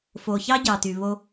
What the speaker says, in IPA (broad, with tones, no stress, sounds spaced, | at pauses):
f o˩ ç ɑ˥ ɟ ɑ˩ t y˩ β o˥